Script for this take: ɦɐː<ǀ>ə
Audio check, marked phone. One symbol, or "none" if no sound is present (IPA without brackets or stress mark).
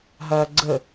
ɡ͡ǀ